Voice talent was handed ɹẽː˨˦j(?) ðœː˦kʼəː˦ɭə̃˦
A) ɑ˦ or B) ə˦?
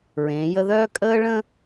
B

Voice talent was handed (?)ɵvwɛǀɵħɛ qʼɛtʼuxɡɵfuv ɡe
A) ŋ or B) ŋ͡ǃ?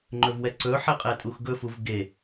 B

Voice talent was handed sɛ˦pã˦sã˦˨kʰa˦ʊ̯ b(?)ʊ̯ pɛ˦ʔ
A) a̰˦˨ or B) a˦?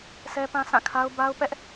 B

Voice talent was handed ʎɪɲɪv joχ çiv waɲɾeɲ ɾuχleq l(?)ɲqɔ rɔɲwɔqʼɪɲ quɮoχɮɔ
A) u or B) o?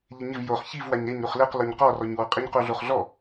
B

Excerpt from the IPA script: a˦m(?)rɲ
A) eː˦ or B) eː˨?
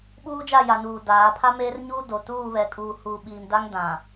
A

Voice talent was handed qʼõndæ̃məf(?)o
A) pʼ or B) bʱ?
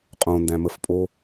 A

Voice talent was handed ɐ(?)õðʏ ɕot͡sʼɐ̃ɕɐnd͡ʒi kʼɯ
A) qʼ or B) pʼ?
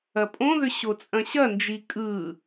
B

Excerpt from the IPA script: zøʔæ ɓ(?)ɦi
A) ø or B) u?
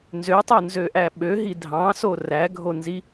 A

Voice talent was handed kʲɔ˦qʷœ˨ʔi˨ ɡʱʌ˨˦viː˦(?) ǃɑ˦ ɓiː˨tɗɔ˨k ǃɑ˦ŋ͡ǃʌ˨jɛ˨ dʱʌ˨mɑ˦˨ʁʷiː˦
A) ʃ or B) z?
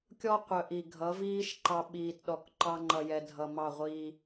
A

